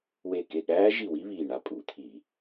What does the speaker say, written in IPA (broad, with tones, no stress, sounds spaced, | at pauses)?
w e˦˨ k e˦˨ ɠ æː˦˥ ʒ i˦˨ w i˦˥ β iː˦˨ ɳ a˦˥ pʼ u˧˩˧ t̪ʰ i˧˩˧